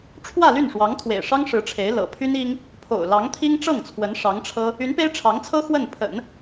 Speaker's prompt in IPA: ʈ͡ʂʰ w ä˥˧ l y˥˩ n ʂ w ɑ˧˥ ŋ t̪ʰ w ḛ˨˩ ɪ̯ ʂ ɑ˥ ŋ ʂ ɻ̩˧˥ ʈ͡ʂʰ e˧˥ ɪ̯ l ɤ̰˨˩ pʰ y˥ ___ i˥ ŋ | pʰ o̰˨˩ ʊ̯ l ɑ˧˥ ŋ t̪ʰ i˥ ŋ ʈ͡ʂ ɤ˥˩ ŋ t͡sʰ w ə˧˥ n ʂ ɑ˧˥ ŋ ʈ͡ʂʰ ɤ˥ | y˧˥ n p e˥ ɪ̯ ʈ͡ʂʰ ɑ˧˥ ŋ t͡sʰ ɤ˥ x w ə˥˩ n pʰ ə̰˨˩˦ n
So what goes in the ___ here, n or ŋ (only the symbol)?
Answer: n